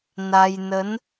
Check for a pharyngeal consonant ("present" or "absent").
absent